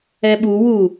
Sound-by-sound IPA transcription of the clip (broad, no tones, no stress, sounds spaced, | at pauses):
ɛ ɓ u w u